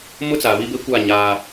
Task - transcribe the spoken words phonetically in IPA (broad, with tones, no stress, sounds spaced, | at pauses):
m ʊ˦ t͡s a˨ β i˦ b e˦ kʷ a˦˨ ɲ aː˦